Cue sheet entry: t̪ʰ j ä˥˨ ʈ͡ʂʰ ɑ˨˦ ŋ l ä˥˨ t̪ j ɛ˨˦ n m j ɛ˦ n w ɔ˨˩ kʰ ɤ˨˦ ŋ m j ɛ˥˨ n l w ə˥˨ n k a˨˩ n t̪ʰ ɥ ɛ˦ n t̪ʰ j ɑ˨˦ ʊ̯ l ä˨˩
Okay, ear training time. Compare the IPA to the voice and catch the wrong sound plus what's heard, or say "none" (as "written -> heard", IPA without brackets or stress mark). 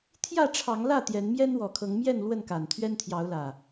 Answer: none